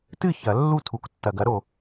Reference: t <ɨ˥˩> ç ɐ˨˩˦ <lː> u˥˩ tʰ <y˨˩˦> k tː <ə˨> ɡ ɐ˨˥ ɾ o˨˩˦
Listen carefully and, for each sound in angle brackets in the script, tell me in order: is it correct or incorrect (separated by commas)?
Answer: correct, correct, incorrect, incorrect